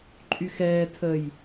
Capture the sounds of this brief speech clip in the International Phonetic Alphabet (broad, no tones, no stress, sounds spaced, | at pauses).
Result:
ǃʼ y x ɛː tʰ ə j